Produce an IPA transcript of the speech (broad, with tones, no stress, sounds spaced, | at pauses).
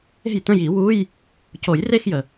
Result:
e̤˥˩ j t ə̃˥˧ j i˨˩˦ w u˧˥˧ j | c o˨˩˦ j r e˥˧ x j ə˩